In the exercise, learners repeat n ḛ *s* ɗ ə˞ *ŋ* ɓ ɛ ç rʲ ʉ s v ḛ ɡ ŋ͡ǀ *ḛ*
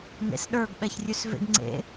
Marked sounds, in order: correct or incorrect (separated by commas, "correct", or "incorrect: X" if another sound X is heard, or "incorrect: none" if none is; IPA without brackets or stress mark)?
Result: correct, incorrect: ɡ, correct